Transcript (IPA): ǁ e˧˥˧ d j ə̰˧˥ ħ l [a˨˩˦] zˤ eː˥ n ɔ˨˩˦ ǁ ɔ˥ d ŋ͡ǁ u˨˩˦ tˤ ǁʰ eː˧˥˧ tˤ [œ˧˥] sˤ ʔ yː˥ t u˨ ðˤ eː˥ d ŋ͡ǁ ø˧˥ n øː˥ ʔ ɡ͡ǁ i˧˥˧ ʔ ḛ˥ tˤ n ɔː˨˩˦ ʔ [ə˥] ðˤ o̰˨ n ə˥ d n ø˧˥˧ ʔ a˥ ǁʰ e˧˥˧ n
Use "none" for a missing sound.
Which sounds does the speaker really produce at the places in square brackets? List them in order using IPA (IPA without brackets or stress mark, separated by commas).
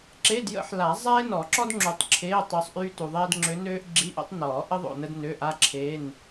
a˨˩˦, ø˧˥, ə˥